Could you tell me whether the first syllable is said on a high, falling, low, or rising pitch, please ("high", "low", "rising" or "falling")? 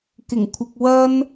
low